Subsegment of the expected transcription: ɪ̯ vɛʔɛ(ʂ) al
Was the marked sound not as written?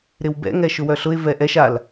yes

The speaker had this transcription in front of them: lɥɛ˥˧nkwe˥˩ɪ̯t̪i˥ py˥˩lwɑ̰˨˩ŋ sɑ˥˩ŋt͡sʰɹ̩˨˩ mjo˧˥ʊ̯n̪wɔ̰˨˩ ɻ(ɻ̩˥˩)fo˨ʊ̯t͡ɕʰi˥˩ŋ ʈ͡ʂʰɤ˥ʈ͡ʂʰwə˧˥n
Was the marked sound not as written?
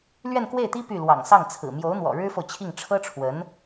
yes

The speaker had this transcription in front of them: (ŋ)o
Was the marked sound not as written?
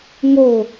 no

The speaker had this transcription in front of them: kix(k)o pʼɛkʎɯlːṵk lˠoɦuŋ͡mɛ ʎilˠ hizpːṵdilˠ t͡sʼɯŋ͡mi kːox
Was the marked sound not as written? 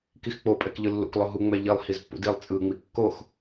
yes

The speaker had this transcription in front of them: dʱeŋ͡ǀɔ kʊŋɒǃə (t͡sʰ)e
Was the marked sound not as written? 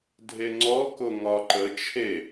yes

